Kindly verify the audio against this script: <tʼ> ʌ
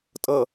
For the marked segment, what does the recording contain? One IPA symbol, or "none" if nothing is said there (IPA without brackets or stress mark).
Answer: tʼ